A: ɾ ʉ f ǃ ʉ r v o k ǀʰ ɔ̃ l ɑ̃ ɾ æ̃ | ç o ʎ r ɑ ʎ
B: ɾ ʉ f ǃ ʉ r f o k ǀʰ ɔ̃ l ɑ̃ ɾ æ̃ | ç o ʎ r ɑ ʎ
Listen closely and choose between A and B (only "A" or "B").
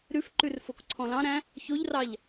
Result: B